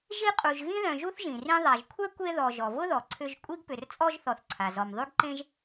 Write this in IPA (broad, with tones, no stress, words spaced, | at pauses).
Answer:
ʒi˦qʼu˨ʒ ɣĩ˦ðœ̃˨ʒu˦θʒĩ˩ rĩ˦ðˤa˨ʒ kʷʰɛ˥kʷe˦ ðɔ˨ʒɔ˩vʊ˥ðɔ˩ ǀʰʏ˦ʒ kʷʼi˦ɡpʏ˨r t͡sʼɔ˦ʒθɔ˨θǀʰa˩ zɔ˨mðˤy˥ɡǃẽ˥ʒ